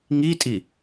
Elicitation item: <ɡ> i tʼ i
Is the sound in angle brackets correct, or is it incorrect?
incorrect